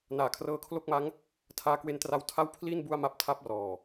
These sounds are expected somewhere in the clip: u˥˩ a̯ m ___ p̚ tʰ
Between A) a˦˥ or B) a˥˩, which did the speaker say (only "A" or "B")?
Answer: A